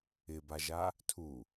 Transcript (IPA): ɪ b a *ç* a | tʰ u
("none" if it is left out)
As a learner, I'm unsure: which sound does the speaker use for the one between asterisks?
ʒ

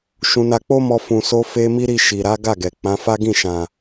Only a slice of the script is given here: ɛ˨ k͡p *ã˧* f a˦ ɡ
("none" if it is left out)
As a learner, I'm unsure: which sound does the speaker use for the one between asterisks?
ã˨˦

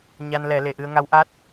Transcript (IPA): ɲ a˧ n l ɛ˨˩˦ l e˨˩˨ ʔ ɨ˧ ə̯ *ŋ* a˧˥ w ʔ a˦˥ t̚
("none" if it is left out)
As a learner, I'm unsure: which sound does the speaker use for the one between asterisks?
ŋ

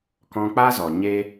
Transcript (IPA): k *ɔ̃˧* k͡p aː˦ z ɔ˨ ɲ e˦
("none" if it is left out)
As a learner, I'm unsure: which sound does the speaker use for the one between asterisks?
ɔ̃˧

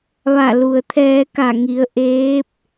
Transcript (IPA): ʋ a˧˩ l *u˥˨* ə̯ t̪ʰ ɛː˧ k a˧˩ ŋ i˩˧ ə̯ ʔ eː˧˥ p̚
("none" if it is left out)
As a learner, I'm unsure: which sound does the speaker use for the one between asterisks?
u˩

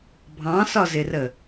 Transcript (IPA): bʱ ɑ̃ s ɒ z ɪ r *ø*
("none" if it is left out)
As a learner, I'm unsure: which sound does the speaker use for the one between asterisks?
ə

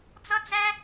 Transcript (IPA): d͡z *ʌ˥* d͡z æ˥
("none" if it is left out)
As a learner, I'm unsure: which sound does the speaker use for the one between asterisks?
ʌ˥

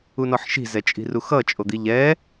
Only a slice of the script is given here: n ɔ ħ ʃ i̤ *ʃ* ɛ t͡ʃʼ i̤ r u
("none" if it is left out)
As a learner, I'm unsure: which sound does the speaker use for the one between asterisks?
z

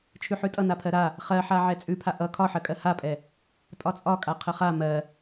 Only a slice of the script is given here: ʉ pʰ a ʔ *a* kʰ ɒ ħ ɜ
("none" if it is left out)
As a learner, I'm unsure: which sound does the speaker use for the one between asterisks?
ʌ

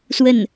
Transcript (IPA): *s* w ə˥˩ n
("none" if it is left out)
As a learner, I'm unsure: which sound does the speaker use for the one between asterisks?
s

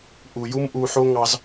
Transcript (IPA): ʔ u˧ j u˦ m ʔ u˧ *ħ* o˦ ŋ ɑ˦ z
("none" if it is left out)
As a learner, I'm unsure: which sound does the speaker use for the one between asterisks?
ħ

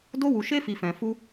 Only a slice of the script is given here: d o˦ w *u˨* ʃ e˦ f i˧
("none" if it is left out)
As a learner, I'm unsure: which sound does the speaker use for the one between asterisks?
u˧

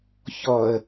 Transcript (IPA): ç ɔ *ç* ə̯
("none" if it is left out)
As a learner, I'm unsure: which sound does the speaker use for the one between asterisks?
none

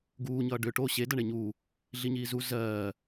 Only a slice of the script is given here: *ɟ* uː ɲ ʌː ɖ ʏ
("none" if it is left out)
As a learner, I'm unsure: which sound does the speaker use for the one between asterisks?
ɡ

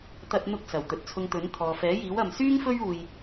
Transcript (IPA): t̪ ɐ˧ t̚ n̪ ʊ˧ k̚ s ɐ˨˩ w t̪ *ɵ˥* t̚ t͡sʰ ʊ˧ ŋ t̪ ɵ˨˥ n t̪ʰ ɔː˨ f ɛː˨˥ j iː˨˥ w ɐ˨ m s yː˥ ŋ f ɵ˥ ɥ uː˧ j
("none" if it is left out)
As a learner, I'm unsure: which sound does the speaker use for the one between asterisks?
ɵ˨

